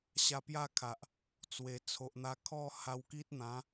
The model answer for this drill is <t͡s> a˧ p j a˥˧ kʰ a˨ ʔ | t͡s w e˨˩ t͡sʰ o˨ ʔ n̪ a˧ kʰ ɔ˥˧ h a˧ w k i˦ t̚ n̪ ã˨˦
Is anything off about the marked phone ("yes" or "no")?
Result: yes